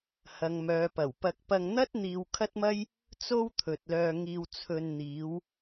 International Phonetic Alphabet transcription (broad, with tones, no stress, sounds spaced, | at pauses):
h ɐ˨ ŋ m œː˨ p ɐ˨˩ w p ɐ˧ k̚ p ɐ˧ ŋ n̪ ɐ˥ t̚ n̪ iː˧ w kʰ ɐ˥ t̚ m ɐ˥ j | t͡s o˥ w t̪ʰ ɵ˨ t̚ l œː˧ ŋ iː˧ w t͡sʰ ɵ˧ n n̪ iː˨˧ w